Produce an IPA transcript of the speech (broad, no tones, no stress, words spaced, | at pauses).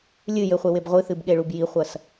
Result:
lʲɨ jɘχʷeweb ʁʷɨθɨbɠeɭub jiχʷɐs